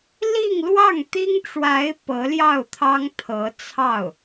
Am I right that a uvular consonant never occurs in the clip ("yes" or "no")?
yes